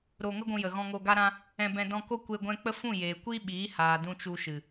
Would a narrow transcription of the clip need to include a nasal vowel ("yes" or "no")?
yes